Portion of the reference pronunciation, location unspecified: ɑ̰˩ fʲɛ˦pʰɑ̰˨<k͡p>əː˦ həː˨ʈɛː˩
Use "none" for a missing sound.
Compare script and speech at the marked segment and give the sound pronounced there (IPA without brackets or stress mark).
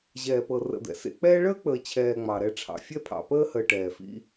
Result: p